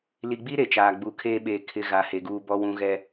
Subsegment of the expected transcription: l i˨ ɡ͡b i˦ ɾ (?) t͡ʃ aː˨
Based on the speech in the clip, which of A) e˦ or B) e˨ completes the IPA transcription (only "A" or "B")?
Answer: B